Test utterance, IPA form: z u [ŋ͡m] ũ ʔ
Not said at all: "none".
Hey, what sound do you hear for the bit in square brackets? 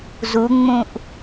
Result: ŋ͡m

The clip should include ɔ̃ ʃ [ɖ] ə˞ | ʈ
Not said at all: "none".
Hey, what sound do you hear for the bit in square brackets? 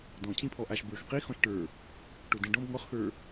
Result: ʈ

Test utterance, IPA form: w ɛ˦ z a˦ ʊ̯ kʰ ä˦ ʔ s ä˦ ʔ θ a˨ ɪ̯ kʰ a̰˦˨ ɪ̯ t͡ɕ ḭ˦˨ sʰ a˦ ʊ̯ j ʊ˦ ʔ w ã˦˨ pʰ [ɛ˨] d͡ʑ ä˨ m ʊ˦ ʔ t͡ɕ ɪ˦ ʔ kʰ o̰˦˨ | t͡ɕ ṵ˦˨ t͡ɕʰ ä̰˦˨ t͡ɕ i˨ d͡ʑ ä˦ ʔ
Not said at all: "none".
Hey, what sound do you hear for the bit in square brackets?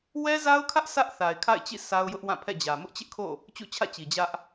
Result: ɛ̰˦˨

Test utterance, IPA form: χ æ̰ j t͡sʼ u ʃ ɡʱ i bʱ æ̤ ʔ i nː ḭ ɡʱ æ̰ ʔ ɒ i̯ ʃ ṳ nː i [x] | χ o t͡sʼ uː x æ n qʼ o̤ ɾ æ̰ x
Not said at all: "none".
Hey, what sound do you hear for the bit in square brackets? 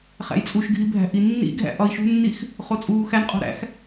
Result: x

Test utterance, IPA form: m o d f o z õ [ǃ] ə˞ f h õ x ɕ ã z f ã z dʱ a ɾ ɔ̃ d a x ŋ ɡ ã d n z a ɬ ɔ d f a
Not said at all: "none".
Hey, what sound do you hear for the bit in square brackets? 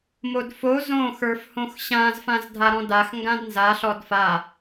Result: x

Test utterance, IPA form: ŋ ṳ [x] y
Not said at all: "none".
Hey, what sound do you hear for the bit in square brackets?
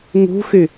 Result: x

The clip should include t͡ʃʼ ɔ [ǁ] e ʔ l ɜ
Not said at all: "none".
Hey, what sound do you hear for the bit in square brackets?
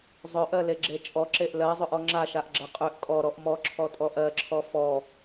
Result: ǁ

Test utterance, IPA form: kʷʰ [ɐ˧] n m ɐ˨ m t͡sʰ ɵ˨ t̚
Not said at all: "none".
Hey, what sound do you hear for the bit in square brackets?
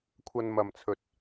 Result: ɐ˧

